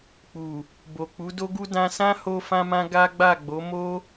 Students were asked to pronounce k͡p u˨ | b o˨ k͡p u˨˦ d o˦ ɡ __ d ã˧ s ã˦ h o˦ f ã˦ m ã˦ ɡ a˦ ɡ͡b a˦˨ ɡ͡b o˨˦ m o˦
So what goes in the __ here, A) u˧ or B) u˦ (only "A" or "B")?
B